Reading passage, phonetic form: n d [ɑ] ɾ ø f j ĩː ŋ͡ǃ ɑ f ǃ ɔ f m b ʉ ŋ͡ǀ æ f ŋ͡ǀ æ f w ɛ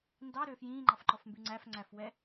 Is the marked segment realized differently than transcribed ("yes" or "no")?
no